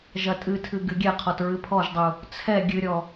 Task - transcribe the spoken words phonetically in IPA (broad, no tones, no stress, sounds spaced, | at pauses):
ʒ ɐ tʼ ɨ tʰ ɨ ɡ ɨ ɡʲ ɛ qʰ ɔ t ɹ ɨ pʰ ɔ ʒ dˤ u | t͡sʰ ɛ ɡʲ ɨ ɾʲ ɔ